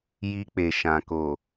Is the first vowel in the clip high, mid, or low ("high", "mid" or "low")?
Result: high